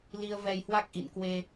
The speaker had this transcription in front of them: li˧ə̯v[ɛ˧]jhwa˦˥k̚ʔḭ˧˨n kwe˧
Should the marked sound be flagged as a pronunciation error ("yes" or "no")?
no